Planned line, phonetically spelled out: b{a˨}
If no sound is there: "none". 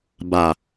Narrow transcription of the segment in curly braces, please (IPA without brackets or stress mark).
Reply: a˨